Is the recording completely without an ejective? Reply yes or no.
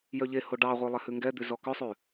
yes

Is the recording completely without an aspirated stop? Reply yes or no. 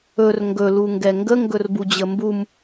yes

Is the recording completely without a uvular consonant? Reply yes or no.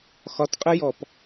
no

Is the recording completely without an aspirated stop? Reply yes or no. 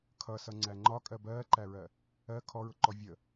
no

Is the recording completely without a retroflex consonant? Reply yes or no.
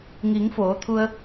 yes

